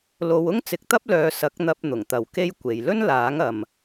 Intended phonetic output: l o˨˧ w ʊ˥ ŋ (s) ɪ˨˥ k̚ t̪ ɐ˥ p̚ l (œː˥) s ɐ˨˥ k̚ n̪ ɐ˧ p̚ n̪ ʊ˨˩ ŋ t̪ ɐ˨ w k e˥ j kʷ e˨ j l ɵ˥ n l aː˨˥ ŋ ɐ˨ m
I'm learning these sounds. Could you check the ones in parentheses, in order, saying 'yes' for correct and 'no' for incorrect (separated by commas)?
no, no